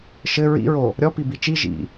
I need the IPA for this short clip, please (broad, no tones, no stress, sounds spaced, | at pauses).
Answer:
ʃ ɘ ɹ ḭ ɹ o | ɾʲ ɔ p i b i t͡ʃ i ʒ ḭ